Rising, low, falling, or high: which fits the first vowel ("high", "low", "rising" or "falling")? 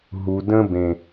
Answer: low